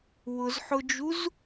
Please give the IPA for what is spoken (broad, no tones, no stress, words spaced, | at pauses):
wʊzħʊd͡ʒuz